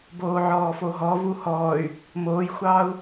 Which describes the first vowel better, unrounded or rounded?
rounded